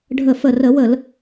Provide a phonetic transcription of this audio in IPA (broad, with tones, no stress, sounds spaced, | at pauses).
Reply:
ɖʱ ə˧˩ f ə˧˩ r ə˧˩˧ w ə˧˩˧ l